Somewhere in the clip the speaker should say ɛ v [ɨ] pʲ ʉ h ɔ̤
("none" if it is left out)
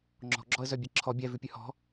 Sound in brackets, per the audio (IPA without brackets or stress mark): ʉ